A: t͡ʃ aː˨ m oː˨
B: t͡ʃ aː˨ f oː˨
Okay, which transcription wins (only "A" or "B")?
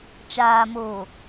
A